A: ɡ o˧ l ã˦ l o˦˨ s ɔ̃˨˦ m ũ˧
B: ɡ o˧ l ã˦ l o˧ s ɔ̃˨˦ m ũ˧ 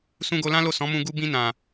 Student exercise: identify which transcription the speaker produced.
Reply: A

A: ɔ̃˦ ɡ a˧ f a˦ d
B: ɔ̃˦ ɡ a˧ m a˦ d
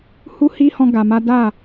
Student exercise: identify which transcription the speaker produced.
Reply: B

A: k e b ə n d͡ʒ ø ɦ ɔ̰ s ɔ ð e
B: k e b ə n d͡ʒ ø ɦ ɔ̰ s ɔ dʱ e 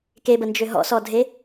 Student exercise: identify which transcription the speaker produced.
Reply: B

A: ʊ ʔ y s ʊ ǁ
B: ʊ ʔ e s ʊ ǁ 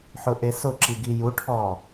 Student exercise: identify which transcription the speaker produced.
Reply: B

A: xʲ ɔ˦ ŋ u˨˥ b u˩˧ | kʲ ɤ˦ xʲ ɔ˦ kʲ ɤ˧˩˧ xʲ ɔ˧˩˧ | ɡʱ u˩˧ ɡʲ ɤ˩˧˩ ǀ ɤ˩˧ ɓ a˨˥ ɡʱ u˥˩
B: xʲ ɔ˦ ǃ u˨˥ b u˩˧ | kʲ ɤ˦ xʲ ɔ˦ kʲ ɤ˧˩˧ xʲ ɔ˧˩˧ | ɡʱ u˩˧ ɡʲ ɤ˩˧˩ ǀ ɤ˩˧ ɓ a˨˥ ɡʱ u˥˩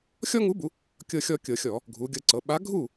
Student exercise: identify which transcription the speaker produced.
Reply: A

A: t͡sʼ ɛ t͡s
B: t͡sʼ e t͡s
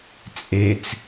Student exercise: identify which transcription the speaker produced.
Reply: B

